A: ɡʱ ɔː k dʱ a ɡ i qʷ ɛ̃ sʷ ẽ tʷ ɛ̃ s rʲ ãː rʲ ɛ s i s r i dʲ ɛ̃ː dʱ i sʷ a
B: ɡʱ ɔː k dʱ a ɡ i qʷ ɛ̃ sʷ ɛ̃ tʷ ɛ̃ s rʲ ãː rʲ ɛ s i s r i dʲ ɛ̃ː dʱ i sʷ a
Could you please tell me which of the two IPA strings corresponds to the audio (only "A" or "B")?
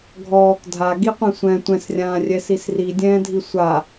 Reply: B